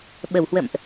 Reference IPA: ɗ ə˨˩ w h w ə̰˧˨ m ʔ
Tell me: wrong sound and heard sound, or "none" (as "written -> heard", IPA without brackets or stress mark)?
ɗ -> ɓ